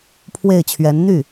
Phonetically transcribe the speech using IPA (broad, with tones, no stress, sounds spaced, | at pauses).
pʰ w e˥˩ ɪ̯ t͡ɕʰ ɥ ɛ˧˥ n n̪ y˥˩